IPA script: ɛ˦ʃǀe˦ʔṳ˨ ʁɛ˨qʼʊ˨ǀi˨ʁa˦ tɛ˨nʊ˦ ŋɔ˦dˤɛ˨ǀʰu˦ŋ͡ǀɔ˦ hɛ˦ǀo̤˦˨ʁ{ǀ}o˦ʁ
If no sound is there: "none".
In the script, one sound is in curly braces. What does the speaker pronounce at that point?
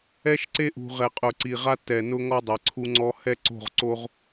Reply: ǀ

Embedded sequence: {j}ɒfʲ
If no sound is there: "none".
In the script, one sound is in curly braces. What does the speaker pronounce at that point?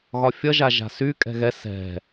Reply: ɣ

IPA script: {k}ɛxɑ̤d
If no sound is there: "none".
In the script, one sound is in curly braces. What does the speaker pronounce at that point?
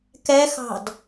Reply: k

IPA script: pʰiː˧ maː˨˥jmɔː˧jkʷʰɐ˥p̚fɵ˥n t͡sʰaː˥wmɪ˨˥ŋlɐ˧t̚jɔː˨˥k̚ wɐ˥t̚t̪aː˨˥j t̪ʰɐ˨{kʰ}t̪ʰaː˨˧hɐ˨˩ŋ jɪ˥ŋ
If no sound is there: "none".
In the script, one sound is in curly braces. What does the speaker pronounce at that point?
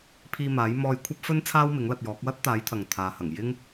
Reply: ŋ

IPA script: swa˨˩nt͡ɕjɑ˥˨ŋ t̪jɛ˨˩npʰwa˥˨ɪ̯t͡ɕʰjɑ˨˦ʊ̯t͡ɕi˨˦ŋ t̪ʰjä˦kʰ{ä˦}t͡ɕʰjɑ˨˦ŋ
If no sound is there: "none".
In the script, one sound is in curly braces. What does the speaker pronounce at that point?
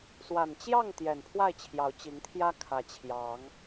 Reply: ä˨˩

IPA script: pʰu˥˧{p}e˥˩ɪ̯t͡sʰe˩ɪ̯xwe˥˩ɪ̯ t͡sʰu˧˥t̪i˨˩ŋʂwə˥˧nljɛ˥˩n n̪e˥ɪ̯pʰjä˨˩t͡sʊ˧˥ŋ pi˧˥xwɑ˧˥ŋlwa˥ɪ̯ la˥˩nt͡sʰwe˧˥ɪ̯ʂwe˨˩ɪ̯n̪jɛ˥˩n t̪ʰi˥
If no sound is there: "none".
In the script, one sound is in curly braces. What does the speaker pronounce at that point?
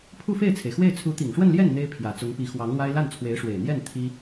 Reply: f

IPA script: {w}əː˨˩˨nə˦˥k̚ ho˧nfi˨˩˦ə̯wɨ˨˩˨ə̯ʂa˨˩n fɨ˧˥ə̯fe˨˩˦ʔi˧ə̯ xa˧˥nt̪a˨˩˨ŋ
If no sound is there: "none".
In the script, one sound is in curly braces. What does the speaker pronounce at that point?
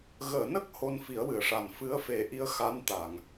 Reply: ɣ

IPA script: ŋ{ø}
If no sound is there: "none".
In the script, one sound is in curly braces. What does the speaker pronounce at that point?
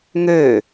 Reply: ø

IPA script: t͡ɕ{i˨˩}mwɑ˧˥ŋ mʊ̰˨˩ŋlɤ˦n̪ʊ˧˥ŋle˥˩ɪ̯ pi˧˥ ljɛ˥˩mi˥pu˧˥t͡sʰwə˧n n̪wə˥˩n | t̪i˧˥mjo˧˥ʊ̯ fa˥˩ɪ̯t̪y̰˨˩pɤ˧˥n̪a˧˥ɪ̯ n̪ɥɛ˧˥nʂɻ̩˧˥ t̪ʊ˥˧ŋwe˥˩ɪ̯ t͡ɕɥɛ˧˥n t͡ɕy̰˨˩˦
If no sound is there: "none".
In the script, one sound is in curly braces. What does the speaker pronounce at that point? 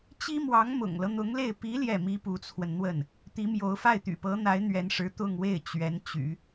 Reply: i˥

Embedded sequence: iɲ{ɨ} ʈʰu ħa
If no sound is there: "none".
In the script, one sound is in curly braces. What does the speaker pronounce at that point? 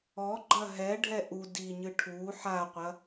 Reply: ɨ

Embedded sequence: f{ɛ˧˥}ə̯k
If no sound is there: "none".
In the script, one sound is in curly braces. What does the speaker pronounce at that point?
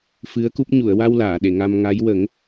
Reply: ɨ˧˥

